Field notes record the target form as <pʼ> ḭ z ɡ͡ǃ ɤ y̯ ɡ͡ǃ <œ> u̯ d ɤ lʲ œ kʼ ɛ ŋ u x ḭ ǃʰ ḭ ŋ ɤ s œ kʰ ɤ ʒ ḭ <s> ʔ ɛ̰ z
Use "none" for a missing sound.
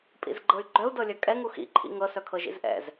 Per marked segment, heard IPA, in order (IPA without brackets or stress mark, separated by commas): pʼ, œ, z